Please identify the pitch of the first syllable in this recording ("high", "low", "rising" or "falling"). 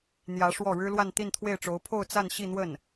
rising